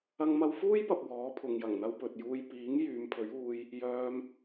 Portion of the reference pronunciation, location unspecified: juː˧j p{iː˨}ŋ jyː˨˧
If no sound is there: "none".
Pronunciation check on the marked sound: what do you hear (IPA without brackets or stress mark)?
iː˨˥